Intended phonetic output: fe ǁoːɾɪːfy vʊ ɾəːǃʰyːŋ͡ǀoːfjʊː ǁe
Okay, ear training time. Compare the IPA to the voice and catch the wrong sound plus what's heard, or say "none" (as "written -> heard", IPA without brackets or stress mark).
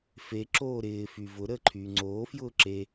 none